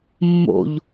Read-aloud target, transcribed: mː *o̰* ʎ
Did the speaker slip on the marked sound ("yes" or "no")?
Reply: no